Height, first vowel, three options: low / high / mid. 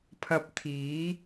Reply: low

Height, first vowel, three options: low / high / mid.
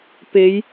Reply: mid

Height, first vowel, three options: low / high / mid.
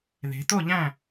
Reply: mid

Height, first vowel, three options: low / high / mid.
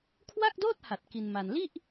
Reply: low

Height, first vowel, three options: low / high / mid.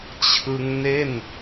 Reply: high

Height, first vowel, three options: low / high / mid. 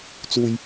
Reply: high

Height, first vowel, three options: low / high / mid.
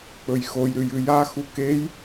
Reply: mid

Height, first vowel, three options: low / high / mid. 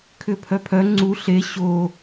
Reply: high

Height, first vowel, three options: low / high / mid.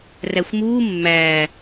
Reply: low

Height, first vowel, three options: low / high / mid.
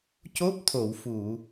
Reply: mid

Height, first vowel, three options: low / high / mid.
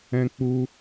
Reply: mid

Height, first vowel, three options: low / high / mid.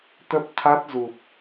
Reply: mid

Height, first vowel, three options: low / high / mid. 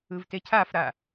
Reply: high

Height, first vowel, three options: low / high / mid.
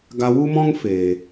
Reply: low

